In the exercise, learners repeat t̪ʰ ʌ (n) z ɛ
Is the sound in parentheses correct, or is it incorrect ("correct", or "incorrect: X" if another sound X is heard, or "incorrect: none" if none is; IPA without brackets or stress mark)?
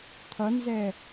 correct